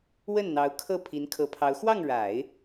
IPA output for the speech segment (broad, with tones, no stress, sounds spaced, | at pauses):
w ə˥˩ n n̪ ɑ˧˥ ʊ̯ kʰ ɤ˥˩ pʰ i˧˥ n kʰ ɤ˧˥ pʰ ɑ˧˥ ʊ̯ x w ɑ˥˩ ŋ ɻ a˨˩˦ ɪ̯